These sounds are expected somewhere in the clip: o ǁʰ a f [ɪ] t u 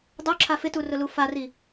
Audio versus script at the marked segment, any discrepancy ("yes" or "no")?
no